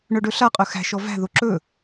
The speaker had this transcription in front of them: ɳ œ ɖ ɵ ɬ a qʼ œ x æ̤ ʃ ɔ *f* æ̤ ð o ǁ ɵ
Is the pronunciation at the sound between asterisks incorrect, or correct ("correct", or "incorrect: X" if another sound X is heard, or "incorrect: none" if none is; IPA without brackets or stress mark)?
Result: incorrect: v